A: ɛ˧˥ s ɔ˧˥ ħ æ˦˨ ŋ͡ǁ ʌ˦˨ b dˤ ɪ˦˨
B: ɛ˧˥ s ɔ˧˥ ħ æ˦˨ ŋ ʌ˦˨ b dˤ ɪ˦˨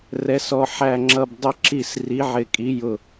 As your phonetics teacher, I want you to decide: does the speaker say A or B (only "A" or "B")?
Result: A